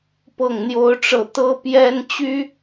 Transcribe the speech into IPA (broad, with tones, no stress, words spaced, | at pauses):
pɤ˥˩ŋn̪jo˥ʊ̯ʈ͡ʂɤ˥˩ t̪ɤ˥pjɛ˥n t͡ɕy˥